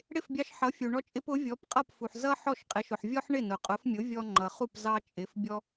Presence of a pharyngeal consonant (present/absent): present